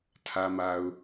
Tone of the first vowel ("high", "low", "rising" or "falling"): low